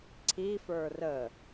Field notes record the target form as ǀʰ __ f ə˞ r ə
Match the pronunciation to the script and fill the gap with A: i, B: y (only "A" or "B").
A